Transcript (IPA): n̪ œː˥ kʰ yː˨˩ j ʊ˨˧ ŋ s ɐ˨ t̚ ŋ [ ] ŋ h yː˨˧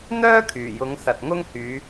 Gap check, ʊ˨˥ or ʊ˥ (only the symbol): ʊ˥